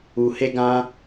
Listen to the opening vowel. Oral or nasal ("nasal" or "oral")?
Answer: oral